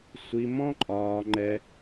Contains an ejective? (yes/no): yes